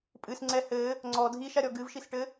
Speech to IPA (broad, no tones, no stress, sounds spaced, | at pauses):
pʼ ɨ s ŋ͡ǀ ɛ h ɘ | ŋ͡ǀ ɔ dʱ i ʃ a ɾʲ ɔ ɡ ɨ v ʃ i s ʈ ɘ